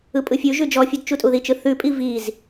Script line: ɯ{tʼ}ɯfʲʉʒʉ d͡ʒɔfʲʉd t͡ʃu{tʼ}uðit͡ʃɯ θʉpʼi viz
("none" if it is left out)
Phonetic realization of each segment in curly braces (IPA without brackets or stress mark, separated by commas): pʼ, tʼ